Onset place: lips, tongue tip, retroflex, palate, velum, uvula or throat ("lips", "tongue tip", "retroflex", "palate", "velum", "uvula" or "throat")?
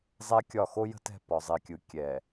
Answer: tongue tip